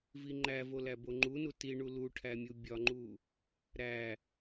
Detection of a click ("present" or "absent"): present